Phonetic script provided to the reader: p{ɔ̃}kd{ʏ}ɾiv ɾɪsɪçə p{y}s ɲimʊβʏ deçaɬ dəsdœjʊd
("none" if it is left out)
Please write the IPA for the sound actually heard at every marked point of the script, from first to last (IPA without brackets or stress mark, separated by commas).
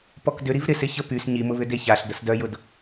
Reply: ɔ, ʏ, y